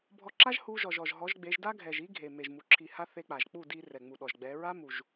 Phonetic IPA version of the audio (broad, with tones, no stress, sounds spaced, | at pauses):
bʱ ɔ˧ ǁ a˦ ʒ h u˧ ʒ ɔ˨ ʒ ɔ˨ ʒ ɦ ɔ˨˦ ʒ ɡ͡b e˨˦ ʒ d a˦ ɡʱ ɛ˨ ʒ i˦ ɡʱ e˨ m e˨ ʒ m u˨ ǁʰ i˨ h a˧ θ e˧ k͡p a˨ ʒ k͡p u˦˨ d i˧ r ɛ˨ ŋ͡m u˨ ɗ ɔ˨ ʒ ɡ͡b ɛ˨˦ ɹ a˦ m u˨ ʒ